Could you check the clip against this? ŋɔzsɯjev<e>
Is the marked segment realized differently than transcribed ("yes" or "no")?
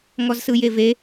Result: no